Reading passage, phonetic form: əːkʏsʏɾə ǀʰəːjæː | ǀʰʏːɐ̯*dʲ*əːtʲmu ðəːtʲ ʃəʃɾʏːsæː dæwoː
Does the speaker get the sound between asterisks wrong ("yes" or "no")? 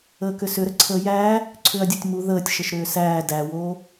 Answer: no